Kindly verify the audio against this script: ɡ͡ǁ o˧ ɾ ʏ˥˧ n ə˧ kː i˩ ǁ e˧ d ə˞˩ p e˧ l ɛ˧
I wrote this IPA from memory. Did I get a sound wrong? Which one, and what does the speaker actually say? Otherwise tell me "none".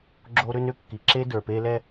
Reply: ə˧ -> ʏ˧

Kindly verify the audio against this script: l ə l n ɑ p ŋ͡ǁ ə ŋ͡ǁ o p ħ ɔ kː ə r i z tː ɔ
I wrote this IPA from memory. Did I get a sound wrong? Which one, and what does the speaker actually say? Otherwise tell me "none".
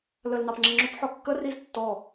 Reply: none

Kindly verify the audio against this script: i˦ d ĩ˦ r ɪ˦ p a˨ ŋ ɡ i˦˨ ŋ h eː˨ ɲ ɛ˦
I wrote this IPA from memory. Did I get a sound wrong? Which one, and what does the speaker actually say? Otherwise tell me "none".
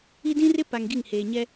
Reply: none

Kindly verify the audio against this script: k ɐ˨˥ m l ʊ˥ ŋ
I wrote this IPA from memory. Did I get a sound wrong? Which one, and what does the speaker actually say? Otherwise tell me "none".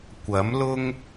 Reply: k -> kʷ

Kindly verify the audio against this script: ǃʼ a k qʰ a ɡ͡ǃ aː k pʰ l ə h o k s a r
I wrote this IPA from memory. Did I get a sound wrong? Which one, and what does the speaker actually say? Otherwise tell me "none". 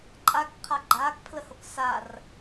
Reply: none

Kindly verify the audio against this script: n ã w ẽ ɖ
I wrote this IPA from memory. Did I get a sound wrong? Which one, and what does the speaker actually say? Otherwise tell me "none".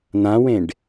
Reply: none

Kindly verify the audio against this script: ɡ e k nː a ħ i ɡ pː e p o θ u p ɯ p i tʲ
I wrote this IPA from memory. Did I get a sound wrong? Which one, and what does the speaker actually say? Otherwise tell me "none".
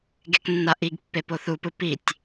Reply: ħ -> ʔ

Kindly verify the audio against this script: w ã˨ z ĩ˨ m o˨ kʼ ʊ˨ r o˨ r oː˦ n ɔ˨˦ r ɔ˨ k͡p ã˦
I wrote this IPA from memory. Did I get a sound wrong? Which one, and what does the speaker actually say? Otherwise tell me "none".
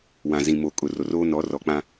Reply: none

